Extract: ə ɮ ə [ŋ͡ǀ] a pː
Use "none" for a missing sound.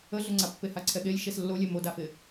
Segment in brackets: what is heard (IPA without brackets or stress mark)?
ŋ͡ǀ